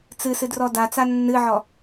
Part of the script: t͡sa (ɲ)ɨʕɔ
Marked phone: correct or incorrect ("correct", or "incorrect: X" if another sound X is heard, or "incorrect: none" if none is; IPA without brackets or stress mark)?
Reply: incorrect: nː